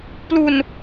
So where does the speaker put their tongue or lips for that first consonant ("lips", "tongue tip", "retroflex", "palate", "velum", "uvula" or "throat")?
lips